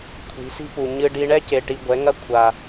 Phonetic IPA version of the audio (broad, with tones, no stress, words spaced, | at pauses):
kʷʰi̤˨˦si̤˦pu˨ ɲɨ˧ɖi˧ ɳɛ˦ce˨ʈi˨ ɡʷɛ˨˦ŋɐ˦ kʷʰa˨